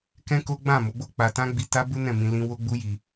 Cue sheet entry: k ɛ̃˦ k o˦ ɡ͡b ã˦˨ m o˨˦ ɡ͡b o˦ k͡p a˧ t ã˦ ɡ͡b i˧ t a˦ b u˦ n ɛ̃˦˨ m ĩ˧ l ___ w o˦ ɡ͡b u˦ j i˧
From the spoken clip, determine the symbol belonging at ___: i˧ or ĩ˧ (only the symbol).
ĩ˧